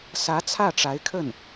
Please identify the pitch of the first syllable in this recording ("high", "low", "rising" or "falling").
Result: rising